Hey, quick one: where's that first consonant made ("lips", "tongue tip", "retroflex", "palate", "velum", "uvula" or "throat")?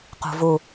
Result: uvula